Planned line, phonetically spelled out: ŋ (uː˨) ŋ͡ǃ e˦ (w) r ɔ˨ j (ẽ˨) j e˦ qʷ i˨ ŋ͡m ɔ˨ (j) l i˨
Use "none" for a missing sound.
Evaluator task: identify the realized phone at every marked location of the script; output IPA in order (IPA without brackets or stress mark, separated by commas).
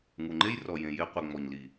u˨, j, ẽ˨, ɲ